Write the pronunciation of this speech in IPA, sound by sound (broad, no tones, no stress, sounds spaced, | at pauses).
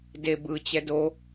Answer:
d e b ɯ t͡ɕ ɛ d o